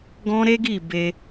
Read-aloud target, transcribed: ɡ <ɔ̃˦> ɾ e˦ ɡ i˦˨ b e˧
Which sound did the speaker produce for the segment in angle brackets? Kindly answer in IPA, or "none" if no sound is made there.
ɔ̃˦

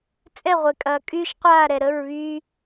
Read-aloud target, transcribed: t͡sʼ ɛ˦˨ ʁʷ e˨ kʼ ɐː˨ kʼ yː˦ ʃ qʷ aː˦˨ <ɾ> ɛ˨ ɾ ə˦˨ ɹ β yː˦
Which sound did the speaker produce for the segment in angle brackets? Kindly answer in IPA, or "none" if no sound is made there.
ɾ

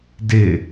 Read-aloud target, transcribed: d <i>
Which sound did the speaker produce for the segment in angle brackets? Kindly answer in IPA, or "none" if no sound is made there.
ɪ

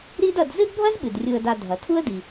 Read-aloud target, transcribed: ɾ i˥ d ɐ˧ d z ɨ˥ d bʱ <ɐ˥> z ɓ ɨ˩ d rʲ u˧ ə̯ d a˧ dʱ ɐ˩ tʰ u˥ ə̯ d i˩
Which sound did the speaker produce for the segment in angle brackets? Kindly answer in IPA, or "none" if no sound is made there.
ɐ˥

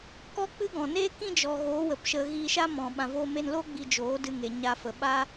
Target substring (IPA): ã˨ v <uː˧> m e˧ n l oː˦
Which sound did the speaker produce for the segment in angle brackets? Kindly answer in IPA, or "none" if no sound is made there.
oː˧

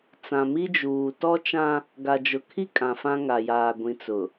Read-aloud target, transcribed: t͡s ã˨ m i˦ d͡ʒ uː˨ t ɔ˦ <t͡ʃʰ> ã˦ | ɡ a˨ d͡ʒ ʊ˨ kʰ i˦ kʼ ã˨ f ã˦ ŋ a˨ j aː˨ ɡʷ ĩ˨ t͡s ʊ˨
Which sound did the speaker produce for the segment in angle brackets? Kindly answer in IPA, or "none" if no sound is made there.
t͡ʃ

